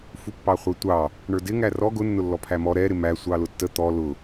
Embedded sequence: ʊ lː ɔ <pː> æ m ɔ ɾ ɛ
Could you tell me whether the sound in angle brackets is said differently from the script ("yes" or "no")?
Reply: yes